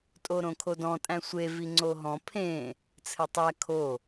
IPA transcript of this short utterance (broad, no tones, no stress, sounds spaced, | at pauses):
tʼ o ɾ õ kʰ o d ɔ̃ tʼ æ̃ sʷ e v i ŋ͡ǀ o ɦ ɔ̃ pʰ ẽ | t͡sʰ ɘ tˤ æ kʰ o